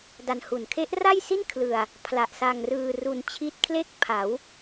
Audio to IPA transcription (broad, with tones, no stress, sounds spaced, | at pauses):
d a˧ n h u˨˩ n kʰ e˦˥ ʔ r a˥˩ j s i˥˩ n kʰ l ɯ˧ a̯ | pʰ l a˨˩ ʔ s a˧ ŋ r ɯː˧ r u˧ n t͡ɕʰ i˦˥ t̚ kʰ l e˥˩ k̚ pʰ a˩˦ w